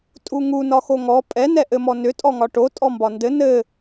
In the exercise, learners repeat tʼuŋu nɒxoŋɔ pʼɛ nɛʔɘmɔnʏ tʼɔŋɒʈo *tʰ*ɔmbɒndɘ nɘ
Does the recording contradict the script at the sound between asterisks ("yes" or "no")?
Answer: yes